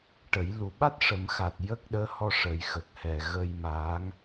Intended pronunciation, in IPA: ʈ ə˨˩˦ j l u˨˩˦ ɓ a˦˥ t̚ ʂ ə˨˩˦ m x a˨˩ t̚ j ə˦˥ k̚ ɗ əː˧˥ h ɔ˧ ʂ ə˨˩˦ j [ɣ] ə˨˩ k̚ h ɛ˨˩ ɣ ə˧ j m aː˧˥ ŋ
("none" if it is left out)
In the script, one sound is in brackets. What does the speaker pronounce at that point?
x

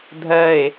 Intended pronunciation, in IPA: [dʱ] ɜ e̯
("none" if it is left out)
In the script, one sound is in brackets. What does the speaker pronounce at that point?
dʱ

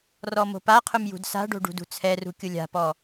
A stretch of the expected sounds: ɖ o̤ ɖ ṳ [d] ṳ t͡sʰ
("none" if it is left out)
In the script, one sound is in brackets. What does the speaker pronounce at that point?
d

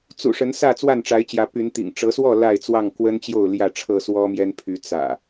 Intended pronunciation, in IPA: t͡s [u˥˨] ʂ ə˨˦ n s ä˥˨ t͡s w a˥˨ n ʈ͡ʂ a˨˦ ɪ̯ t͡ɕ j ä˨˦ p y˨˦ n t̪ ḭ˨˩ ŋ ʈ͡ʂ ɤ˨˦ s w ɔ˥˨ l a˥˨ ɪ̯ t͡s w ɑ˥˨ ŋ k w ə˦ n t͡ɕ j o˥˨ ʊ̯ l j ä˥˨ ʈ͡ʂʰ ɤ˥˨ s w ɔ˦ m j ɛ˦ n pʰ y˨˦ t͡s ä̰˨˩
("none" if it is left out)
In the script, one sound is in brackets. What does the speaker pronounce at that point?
ṵ˨˩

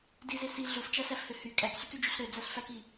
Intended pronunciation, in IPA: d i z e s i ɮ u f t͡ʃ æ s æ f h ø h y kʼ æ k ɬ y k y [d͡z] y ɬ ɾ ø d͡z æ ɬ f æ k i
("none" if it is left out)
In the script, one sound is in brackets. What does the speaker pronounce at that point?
d͡ʒ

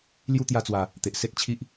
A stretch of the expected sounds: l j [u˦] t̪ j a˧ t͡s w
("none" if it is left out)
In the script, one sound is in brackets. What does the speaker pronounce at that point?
u˦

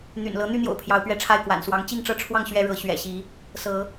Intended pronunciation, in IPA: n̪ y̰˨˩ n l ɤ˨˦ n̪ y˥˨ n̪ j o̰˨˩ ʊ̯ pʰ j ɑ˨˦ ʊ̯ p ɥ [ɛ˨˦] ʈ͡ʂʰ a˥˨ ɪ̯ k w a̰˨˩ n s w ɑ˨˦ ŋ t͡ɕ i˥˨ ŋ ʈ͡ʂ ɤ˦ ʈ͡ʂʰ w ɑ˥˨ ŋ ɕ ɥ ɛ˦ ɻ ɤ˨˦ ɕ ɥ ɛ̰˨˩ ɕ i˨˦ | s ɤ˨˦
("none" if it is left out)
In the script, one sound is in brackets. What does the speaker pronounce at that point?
ɛ˥˨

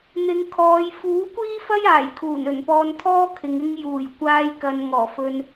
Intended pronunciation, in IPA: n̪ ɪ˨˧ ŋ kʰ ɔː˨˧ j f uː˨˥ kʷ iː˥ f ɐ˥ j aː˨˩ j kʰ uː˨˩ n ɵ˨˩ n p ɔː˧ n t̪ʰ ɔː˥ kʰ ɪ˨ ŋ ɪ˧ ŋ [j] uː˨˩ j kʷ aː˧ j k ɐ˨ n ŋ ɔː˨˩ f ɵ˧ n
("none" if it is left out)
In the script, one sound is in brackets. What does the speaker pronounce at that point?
j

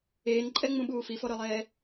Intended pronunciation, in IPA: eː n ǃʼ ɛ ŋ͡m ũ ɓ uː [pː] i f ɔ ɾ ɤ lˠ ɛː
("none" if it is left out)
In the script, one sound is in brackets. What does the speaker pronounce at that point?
f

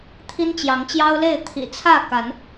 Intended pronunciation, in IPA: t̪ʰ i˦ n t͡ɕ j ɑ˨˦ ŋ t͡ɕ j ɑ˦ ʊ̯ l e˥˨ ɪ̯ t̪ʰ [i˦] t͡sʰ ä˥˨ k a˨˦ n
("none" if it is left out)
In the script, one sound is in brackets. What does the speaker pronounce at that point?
ḭ˨˩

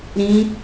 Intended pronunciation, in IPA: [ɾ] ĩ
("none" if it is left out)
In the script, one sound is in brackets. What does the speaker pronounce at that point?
ɾ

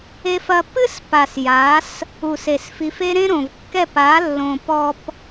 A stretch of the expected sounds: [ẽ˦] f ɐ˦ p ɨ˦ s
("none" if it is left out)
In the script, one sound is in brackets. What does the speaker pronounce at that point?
e˦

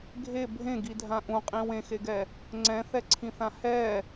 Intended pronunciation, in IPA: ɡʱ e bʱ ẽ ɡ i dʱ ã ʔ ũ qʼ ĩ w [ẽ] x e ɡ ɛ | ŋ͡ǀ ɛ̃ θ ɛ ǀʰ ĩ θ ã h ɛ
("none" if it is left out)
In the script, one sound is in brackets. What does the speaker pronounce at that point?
ẽ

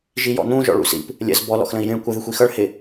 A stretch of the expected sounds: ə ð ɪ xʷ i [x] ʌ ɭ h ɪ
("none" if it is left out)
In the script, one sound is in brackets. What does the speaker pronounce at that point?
x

